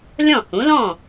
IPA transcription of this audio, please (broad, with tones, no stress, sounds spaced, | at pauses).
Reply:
lʲ ɔ̃˥˩ h ũ˩˥ l ɔ̃˥˩